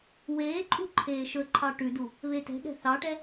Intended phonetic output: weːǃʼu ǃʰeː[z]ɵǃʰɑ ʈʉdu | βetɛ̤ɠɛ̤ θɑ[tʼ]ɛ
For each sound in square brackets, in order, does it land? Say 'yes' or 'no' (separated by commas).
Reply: no, no